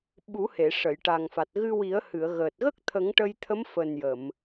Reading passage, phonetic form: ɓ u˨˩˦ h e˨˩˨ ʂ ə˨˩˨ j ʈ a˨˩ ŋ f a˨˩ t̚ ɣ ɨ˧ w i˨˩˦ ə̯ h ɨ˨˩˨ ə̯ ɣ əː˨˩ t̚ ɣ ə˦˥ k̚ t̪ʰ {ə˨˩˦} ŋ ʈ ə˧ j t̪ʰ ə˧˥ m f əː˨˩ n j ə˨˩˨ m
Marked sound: correct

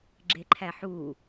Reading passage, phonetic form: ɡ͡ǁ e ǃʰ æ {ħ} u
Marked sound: correct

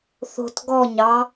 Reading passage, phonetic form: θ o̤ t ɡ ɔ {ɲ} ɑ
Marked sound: correct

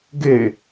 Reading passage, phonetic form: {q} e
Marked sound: incorrect: ɡ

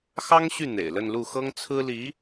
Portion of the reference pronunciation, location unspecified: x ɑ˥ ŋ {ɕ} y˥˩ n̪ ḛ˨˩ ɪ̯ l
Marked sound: correct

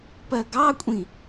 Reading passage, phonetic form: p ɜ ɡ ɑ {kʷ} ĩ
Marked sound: incorrect: kʷʼ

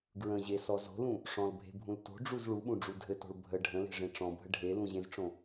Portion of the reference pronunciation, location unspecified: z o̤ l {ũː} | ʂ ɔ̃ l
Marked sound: incorrect: ũ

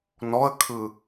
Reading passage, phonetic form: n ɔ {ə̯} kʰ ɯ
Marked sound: correct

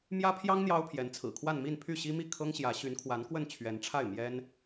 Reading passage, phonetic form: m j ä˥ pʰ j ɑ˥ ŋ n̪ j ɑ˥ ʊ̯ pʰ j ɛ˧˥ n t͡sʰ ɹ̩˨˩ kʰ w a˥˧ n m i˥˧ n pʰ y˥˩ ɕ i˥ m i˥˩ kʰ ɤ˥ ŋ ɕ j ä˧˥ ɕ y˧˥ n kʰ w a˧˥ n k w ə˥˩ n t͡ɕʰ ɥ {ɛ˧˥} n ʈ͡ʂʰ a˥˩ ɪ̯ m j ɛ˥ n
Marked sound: correct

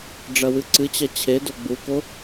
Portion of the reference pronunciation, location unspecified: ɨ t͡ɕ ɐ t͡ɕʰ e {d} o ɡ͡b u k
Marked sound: correct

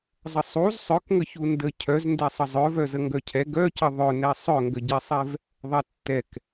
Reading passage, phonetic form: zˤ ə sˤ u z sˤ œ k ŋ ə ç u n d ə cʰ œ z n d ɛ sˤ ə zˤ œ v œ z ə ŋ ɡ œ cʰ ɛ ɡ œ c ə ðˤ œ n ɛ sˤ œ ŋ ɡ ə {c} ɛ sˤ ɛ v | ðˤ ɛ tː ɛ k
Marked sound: incorrect: ɟ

